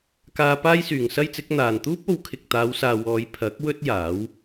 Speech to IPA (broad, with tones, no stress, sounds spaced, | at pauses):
k aː˧ p aː˥ j s yː˨ ŋ s ɐ˥ j t͡s ɪ˨˥ k̚ n̪ aː˨ n t̪ uː˥ p̚ o˨˧ w kʰ ɪ˨ k̚ t̪ aː˨˧ w s aː˨ w ɔː˨˧ j pʰ ɐ˨˥ k̚ w ɵ˥ t̚ j aː˨˥ w